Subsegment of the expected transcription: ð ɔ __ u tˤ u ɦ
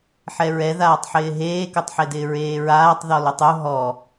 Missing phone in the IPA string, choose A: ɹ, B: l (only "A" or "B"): B